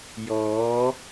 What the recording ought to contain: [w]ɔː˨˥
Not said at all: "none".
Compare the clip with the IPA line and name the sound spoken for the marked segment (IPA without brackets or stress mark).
j